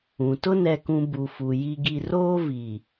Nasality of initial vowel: nasal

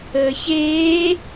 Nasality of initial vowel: oral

